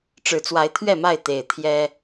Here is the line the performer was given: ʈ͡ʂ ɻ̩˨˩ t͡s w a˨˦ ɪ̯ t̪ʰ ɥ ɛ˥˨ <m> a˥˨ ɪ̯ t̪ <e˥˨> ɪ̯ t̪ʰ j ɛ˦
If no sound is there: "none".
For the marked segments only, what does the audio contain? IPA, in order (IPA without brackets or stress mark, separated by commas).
m, e˨˩